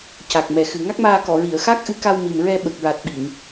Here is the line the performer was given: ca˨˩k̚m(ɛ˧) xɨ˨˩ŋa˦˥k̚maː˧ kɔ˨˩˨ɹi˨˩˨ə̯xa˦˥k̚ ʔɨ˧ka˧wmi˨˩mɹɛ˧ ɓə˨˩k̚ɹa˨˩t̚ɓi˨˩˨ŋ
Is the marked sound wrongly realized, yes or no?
yes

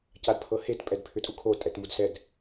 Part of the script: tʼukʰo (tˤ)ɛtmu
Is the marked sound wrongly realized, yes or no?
yes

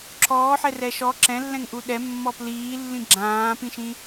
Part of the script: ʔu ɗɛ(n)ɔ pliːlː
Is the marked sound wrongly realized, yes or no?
yes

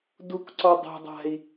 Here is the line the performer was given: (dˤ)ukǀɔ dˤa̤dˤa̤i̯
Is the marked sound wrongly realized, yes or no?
yes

